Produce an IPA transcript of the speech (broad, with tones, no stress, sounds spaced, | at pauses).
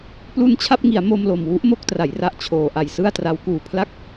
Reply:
p l u˧ n t͡ɕʰ a˥˩ p̚ ŋ i˩˦ a̯ m o˧ m l o˨˩ m w u˦˥ ʔ m o˥˩ k̚ t r a˩˦ j r a˨˩ ʔ t͡ɕʰ oː˨˩ ʔ a˨˩ j s ɯ˥˩ a̯ t r a˦˥ w k uː˨˩ pʰ l a˥˩ k̚